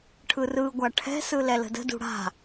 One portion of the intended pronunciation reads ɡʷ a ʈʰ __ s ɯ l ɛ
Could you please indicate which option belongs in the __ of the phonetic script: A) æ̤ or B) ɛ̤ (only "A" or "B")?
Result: B